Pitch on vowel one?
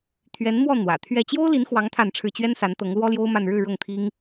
rising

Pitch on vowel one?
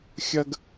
high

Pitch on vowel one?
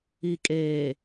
low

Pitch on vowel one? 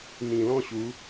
low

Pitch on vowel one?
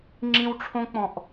high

